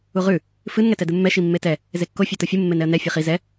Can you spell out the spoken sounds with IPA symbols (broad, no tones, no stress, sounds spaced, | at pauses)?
u ʁ ʉ | f ɨ n ŋ ɛ t ɛ d ɨ mː ɛ ʃ i mː e t ɛ | z e kː o fʲ e t o fʲ ɨ mː e n ɛ ə̯ n ɛ fʲ e χ i z ɛ